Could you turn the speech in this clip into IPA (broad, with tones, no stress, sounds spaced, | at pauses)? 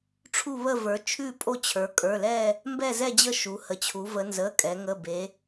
ʈ͡ʂʰ u˦˨ β ə˦˨ v ə˞˩˧ t͡ʃʰ ʉ˦˨ pʼ o˦˨ t͡ɕʰ ə˞˩˧ kʼ ə˞˩˧˩ l ɛ˦˨ | m b ɛ˦˨ z ɛ˦˨ d͡ʑ ə˦˨ ʃ u˩˧ h ə˩˧ t͡ɕʰ u˩˧ v ə˩˧ n z ə˩˧˩ kʼ ɛ˩˧ ŋ ə˩˧˩ b e˩˧